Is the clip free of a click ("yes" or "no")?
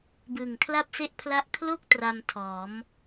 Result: yes